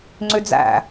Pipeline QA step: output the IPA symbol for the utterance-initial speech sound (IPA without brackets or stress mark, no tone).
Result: ŋ͡ǀ